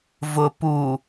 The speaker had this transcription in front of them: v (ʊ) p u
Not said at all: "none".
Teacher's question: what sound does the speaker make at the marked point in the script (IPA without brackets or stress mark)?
ʊ